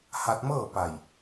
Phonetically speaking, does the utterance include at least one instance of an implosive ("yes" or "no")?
no